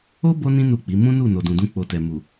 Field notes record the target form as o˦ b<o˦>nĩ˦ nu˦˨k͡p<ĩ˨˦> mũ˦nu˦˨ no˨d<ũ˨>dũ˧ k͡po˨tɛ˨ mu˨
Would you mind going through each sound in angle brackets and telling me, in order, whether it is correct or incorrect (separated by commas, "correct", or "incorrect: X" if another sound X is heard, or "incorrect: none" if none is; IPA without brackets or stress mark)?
correct, incorrect: i˨˦, correct